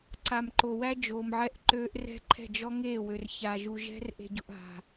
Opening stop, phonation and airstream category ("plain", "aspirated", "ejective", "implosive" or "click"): click